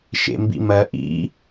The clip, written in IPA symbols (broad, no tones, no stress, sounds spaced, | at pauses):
ʃ ḛ m b ḭ m ɜ ʔ ḭ